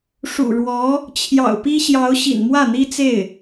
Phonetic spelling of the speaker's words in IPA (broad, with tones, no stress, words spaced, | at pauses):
ʂṵ˨˩ɻwɔ˧˥ | t͡ɕʰjɑ̰˨˩ʊ̯pi˥ɕjɑ˧˥ʊ̯ ɕḭ˨˩nmwä˥˩n̪i˥t͡se˥˩ɪ̯